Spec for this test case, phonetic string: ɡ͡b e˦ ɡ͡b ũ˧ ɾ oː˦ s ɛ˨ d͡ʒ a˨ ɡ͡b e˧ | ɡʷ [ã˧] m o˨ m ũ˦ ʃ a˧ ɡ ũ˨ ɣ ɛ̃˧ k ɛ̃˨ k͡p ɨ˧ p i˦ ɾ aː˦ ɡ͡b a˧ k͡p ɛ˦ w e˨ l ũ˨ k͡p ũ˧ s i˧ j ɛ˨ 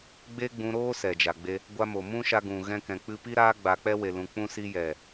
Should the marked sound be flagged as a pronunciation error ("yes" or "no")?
yes